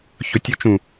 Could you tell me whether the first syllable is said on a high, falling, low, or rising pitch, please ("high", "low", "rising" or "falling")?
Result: low